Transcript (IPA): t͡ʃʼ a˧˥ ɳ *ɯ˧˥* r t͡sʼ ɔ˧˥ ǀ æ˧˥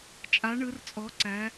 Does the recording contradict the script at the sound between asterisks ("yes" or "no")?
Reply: no